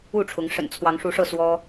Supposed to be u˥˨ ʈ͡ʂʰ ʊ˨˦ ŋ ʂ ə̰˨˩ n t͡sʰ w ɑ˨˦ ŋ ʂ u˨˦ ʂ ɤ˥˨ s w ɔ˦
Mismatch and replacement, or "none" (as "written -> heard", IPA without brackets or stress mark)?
none